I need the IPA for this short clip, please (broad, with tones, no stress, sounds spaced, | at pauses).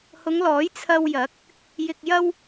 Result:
h ʊ˨˧ ŋ l ɔː˨˥ j t͡sʰ ɐ˧ w j ɐ˨˥ k̚ | j ɪ˧ k̚ j ɐ˥ w